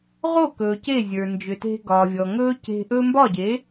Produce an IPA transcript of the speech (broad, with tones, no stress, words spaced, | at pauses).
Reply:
ʁo˥˩kɵː˩ ce˥˩zʲə˞˩ nd͡ʒʏ˩te̤˧ ɡɒ˩ vʲɔ˩ŋɵː˥ ce̤˧ʔɵ˥ mbɒ˥˩ɟe˩˥